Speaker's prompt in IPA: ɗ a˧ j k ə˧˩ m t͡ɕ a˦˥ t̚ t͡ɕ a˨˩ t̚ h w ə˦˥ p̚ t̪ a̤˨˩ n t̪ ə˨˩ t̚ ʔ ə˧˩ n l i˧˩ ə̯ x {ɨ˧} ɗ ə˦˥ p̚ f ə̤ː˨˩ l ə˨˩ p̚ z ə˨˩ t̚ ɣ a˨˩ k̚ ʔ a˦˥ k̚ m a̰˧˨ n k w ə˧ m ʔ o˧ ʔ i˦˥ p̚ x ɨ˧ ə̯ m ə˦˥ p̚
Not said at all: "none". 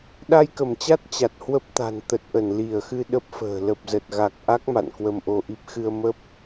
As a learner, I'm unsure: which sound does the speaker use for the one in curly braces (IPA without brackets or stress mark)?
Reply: ɨ˧